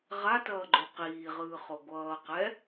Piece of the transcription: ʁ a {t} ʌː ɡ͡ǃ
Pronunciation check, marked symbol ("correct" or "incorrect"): correct